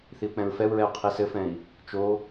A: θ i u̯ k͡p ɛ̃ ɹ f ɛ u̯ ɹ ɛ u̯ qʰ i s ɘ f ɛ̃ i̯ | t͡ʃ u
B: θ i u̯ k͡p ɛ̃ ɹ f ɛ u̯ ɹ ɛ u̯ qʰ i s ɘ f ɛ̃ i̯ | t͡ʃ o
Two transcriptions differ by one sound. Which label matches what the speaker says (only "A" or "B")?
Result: B